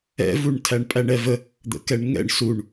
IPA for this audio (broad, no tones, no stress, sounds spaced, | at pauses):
ɛ̰ v u ɳ tʰ æ ɳ pʼ æ ɳ ɛ v ə | d̪ ə̰ k ɛ ɳ ŋ ɛ̰ ɳ s u ɳ